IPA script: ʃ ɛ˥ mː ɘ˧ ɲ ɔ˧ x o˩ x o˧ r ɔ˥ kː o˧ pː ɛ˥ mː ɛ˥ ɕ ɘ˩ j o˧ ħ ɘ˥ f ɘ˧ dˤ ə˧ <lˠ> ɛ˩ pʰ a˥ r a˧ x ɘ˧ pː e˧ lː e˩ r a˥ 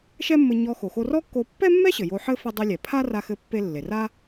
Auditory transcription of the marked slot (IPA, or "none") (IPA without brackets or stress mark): lʲ